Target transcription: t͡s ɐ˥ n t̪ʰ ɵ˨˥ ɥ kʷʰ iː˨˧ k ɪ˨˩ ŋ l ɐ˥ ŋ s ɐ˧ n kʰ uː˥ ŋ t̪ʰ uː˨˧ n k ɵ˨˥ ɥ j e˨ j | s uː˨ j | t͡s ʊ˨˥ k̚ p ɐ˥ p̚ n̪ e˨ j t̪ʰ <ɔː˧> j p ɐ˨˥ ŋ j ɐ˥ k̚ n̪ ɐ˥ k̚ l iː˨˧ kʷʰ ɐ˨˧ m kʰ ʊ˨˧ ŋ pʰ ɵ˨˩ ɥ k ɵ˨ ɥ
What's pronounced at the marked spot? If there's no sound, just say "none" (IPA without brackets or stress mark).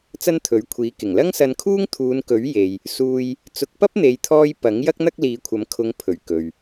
ɔː˧